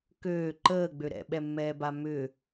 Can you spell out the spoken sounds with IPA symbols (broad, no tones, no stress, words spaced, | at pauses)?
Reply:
køː ǃəːɡ͡bø ɾɛ̰ɓɛmːɛːba mʏ